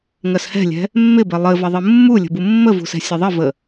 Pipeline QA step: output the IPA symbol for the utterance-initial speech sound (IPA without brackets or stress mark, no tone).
ŋ